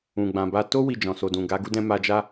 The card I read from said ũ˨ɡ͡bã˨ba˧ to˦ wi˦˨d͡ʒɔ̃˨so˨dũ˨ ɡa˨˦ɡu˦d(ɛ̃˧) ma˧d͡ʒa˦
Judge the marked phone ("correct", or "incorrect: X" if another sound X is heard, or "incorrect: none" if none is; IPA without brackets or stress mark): incorrect: ɛ̃˦